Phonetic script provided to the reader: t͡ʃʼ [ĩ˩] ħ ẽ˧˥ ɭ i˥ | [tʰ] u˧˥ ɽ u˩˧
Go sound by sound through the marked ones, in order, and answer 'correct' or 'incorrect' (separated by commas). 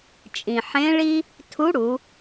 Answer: correct, correct